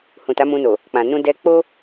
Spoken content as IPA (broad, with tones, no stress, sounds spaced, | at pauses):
h ũ˨ t a˨˦ m ũ˧ n o˨ | k͡p ã˨ n ũ˧ d ɛ˧ k͡p o˦